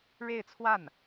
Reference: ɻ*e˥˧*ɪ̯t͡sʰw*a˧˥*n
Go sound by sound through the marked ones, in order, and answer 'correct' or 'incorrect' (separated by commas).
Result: correct, incorrect